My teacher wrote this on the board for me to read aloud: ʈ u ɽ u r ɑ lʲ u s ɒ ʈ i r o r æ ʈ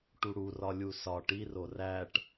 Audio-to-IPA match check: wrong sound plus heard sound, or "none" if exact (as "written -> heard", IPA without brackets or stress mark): ɑ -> ɒ